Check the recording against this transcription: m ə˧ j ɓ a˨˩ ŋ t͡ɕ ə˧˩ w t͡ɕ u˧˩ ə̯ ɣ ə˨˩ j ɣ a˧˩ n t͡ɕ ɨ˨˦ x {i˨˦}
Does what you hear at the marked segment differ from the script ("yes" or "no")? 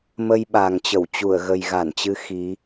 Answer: no